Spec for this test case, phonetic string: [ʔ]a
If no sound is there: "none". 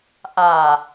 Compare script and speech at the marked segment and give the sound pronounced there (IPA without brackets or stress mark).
ʔ